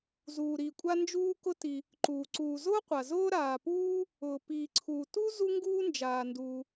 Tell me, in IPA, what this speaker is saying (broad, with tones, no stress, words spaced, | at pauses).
zuː˩ɾiː˩ kʷʼa˥nd͡ʒuː˥kʊ˥ti˩ | ǃuː˩ ǀuː˩ zʊː˥qʷa˩ zʊː˥ɾaː˩puː˥ | ʊː˩ piː˩ǀʰuː˩tu˥ zu˥ŋɡuː˥nd͡ʒaː˩nduː˩